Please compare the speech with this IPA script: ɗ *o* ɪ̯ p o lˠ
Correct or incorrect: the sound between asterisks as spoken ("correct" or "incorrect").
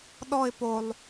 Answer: incorrect